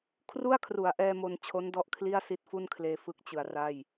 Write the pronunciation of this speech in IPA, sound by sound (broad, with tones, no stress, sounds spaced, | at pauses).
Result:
kʰ r u˥˩ a̯ kʰ r u˩˦ a̯ ʔ ɛː˧ m o˧ n t͡ɕʰ o˦˥ n d ɔ˦˥ ʔ kʰ l i˥˩ a̯ s i˦˥ t̚ f u˥˩ n kʰ l eː˧ f ɯ˦˥ k̚ t͡ɕ ɯ˩˦ a̯ r a˥˩ j